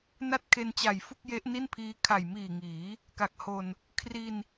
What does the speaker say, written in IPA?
n a˥˩ t̚ kʰ e˧ n t͡ɕ a˨˩ j f u˥˩ k̚ j e˦˥ ʔ n i˥˩ n pʰ iː˦˥ kʰ a˨˩ j m iː˨˩ ŋ iː˩˦ | k a˨˩ k̚ h o˧ n | kʰ r i˧ n

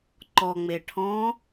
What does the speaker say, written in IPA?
ǃ ɔ ŋ͡m e ʈʰ ɔ̃

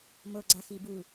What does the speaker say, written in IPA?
m o ɡ͡ǀ a x i b u

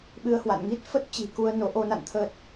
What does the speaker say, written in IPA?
ɓ ɨ˧ ə̯ h w a̰˧˨ n ŋ i˦˥ t̚ f ə˦˥ t̚ t͡ɕ i̤˨˩ k u˧ ə̯ n o˨˦ ʔ o˧ n a̰˧˨ n t̪ʰ əː˦˥ t̚

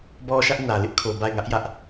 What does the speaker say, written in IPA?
b ɔ˦ ʃ ä˦ ʔ n ä˨ l ɪ˦ ʔ kʰ o˨ b a˦˨ ɪ̯ ŋ ä˦ ʔ j ä˦ ʔ

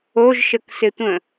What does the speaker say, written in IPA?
o ʒ ʃ ə k s ɪ tʷ ə̃

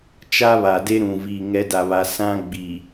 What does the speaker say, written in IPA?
t͡ʃ a˦ β a˨ d e˦ ɾ ũ˨ v iː˨ ŋ ɛ˨˦ d a˨ β a˨ s ã˦ ɡ͡b iː˨

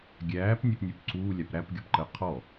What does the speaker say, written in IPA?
ɡʲ æː p nʲ æ p nʲ u p ǀ uː lʲ a p ɾ æ p ɡʲ ɔ p ǃ əː qʰ ɔ

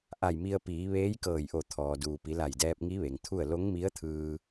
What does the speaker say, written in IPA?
ʔ a˧˩ j m i˧ ə̯ p iː˩˧ ʋ eː˧˥ j k ɤː˧˩ j ʔ o˧˩ t̪ʰ ɔː˩ d uː˩ p i˩˧ l a˧˩ j d ɛː˧ p̚ ŋ i˧˥ ʋ e˩ ŋ t̪ʰ u˥˨ ə̯ l o˧˥ ŋ m i˧˥ ə̯ t̪ʰ ɯː˧

